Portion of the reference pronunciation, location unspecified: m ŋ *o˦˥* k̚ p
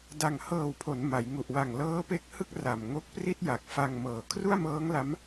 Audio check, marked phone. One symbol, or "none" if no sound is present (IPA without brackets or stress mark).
o˦˥